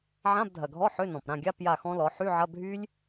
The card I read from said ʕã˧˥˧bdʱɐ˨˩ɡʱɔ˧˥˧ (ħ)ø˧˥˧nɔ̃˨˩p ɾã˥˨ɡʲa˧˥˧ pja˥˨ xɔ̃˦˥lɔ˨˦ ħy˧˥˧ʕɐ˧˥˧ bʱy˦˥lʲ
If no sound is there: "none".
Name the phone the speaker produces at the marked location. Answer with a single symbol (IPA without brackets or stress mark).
ħ